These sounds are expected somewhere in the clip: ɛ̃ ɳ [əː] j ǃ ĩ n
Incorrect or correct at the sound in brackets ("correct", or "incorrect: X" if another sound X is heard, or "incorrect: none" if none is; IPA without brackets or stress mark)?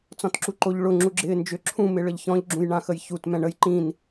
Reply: incorrect: ə